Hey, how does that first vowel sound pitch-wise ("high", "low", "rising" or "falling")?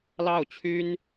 falling